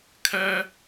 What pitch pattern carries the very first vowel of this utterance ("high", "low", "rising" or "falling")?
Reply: high